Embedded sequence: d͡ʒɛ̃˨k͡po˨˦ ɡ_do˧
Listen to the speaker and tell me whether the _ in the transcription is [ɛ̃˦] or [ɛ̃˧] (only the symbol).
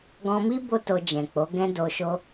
ɛ̃˦